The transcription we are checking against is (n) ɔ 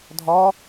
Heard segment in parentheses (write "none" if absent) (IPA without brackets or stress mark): dʱ